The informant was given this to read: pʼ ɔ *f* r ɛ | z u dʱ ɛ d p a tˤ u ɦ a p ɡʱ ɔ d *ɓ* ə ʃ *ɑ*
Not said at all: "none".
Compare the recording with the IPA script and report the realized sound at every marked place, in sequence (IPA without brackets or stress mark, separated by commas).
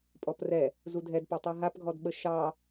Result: p, ɓ, ɑ